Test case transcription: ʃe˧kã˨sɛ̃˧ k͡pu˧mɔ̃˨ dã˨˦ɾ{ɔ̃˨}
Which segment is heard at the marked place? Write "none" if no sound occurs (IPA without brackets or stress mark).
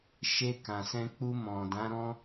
ɔ̃˦